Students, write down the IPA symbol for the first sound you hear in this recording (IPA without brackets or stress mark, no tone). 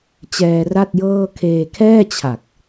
t͡ɕ